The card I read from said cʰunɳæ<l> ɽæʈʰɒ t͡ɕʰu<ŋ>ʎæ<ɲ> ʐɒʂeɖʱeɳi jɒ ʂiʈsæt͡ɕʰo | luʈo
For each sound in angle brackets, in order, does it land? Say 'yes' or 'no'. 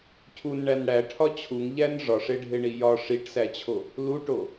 no, yes, no

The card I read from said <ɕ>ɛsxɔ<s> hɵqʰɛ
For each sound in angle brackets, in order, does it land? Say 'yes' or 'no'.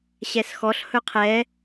yes, no

